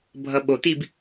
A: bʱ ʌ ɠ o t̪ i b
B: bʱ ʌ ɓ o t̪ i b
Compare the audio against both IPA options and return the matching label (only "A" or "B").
B